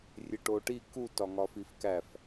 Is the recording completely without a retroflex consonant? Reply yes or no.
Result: no